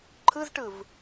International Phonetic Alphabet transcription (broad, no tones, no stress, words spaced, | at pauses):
ǃʰɯzʈɯv